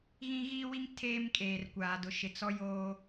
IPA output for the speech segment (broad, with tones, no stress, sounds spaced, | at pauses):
ɣ ĩ˦ ɣ iː˦ w i˦ ŋ tʰ eː˦ m kʼ eː˨ r kʷ aː˨ d ʊ˨ ʃ ɪ˨ t͡s ɔ˦ j oː˦